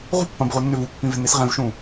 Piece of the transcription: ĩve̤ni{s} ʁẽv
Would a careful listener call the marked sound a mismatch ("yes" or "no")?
no